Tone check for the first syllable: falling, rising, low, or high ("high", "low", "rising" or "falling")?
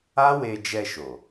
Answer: high